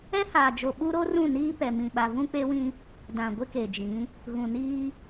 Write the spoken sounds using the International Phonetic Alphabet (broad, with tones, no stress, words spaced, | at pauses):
ɛ˦haː˨d͡ʒo˨ ɓu˦ɾo˦rũ˦˨ niː˦pɛ˨mĩ˨ɓa˨ vũ˦k͡pe˦wĩ˦ | dã˨ɡʷɪ˦ke˨d͡ʒĩ˨˦ | ɣũ˨niː˦